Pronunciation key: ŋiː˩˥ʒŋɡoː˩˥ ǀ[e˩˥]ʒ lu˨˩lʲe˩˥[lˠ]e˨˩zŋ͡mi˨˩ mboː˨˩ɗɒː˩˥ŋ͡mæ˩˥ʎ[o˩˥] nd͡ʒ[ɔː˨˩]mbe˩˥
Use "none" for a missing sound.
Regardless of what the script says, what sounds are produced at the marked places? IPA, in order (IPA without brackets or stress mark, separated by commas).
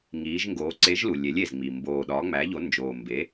e˩˥, lʲ, o˩˥, oː˨˩